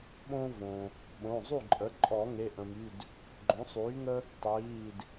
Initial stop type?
implosive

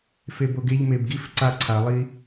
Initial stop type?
plain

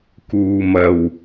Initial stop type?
plain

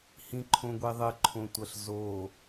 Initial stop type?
click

